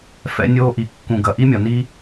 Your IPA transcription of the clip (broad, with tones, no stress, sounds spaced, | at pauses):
f ɛ̰˦ nʲ oː˦ ʔ i˨ kː ũ˨ ɡ ɐ˨ ʔ i˦ mʲ ɒ˨ n i˦